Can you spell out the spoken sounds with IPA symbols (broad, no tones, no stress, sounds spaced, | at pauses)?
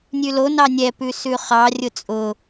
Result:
nʲ ʉ l o n ɑ nʲ ɛ p ʉ s ʉ χ ɑ rʲ ʊ t͡sʼ ʊ